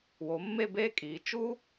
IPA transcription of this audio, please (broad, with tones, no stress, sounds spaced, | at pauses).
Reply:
w o˩˧ mː e˥˧ b eː˥ kʼ iː˩˧ t͡ʃ u˥